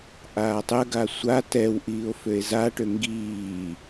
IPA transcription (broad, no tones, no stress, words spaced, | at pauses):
ʔaːtˤəɡa sʷa tɛw ʔiːo̯føe̯zaʈø ŋɡiː